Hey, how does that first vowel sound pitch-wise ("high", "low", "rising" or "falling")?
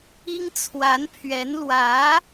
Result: high